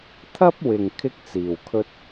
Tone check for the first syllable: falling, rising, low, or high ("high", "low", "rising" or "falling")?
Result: high